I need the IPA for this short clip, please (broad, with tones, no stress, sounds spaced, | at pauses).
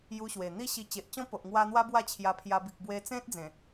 j u˧ ɕ w e˨˩ n̪ i˦ ɕ i˧ t͡ɕ e˨ ʔ t͡ɕ ɔ̃˦ p o˨ ʔ ŋ w a˧ n̪ w a˦ b w a˥˧ t͡ɕʰ j a˧ pʰ j a˧ b i˨ k̚ b w e˧ t͡s ẽ˦ t̚ d͡z ẽ˨˩